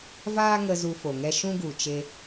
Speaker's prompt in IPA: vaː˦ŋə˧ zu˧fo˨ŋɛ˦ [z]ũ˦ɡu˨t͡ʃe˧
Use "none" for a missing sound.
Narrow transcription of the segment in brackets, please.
ʃ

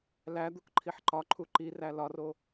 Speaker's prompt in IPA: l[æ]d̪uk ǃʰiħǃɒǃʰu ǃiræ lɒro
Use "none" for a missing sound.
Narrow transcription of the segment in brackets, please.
æ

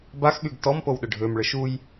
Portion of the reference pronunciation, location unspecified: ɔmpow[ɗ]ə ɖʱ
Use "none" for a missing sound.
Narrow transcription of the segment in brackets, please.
ɗ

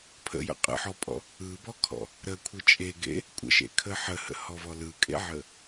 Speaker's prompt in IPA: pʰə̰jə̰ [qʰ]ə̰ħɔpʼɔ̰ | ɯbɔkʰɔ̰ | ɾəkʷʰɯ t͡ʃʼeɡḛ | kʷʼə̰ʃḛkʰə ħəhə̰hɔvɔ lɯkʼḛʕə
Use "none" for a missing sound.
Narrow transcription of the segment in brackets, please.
qʼ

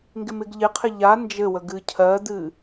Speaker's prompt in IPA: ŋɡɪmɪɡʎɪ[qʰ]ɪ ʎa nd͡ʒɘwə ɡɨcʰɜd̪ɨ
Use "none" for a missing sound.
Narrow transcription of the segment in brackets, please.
qʰ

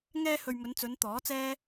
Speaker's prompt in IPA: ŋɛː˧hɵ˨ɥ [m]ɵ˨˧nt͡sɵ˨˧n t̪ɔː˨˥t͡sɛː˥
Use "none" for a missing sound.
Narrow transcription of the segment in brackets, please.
m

